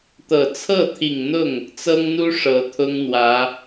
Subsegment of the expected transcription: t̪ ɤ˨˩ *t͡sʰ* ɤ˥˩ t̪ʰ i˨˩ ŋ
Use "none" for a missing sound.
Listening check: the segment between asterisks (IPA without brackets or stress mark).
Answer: t͡sʰ